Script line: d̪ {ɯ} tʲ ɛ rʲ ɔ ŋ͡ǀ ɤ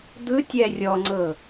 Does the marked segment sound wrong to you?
no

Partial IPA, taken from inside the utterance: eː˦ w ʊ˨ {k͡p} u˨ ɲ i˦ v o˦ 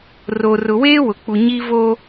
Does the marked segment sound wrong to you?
no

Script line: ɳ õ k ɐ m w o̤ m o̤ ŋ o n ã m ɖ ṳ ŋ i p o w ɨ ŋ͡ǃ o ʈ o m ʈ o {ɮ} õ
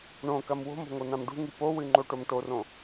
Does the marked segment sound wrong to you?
yes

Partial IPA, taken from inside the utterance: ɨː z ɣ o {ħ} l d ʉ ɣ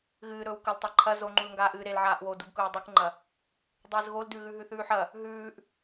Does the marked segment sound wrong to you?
yes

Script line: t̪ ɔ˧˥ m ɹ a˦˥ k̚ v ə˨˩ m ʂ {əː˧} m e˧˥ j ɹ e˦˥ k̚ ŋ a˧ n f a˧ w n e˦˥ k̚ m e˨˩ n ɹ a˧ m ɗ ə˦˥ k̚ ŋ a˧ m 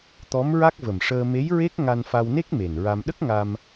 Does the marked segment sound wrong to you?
no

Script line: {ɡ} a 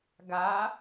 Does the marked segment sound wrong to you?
no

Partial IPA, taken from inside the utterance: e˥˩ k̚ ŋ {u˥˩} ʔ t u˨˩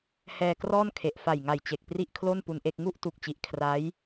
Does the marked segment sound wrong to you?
no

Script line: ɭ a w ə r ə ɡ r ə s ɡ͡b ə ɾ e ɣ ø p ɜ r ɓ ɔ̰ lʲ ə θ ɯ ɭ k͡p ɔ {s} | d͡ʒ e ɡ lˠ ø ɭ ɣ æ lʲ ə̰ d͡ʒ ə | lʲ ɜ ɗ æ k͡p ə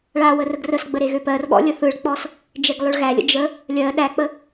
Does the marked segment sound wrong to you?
no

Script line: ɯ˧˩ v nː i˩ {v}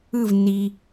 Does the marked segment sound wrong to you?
yes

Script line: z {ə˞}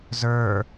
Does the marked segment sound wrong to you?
no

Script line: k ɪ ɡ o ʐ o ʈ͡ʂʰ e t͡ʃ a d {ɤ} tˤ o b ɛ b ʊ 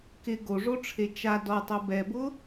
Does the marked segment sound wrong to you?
yes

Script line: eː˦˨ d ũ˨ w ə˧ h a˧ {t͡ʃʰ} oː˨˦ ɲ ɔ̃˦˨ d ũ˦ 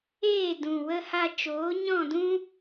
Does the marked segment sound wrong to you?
yes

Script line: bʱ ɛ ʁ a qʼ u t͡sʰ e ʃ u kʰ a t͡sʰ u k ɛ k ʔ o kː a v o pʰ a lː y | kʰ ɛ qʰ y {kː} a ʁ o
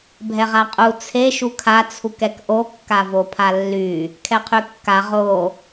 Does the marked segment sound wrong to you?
no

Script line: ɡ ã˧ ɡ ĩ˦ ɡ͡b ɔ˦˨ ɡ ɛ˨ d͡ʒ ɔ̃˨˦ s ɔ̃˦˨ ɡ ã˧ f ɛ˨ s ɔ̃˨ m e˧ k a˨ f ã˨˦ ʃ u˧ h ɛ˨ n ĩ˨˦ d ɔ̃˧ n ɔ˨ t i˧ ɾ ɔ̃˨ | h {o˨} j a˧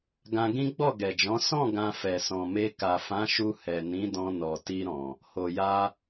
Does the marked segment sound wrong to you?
no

